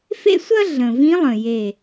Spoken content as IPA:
f ḛ˥ sʷ ɐ˥ ɮ ə̃˨˩ v ĩ˧˥ lˠ ə̃˨˩ j e˨˩

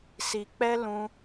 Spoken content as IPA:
s i˨ k͡p ɛ˦ l ũ˧

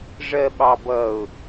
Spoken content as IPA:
ʐ ɜ ɓ ɑ b ʌ ʊ̯

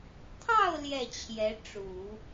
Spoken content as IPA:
t̪ʰ ɑ˥˧ ʊ̯ l j ɛ˥˩ t͡ɕʰ j ɛ˧˥ ʈ͡ʂ u˨˩˦

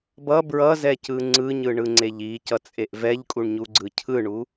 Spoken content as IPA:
b ʌ b ɹ ʌ z ɛ c ɯ ŋ͡ǀ ɯ ɲ ɯ ɳ ɯ ŋ͡ǀ e ʎ i c ʌ t͡sʼ e ʔ v ɛ ʎ kʼ u ɳ ɲ u ɡ͡ǀ ɯ cʰ ɯ ɳ u

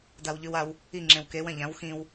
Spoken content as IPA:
d a w ʎ ʉ w a w | i ŋ͡ǁ ẽ w k e w ɐ̃ ʎ ã w x ĩ w

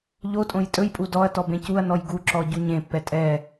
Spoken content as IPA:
ʎ o tʼ õ j tʼ ɵ j pʼ u d ɔ ɐ̯ t ɔ b ẽ c u ɐ̯ n ɔ j ɡ u ǁ ɔ ɟ u ɲ ẽ pː ɛ tʼ ɛ

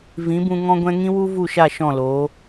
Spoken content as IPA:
v ĩ˨˦ b ũ˧ ŋ ɔ̃˧ ɡʷ ɛ̃˧ ŋ ĩ˦ w u˦ v u˦˨ ʃ a˦˨ ʃ ɔ̃˦˨ l oː˨˦

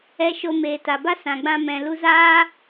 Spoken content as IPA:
ɛ˧ ʃ o˧ m eː˨ t a˨ b a˦ s ã˨ ɡ͡b ã˧ m ɛ̃˨ l u˧ z aː˦

